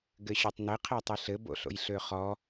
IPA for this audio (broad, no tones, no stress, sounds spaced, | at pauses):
ɡ ɘ ɕ ø tˤ n ɘ qʰ ɛ tˤ i ɬ ɘ b o̰ ɬ o̰ j ɬ ø χ ɔ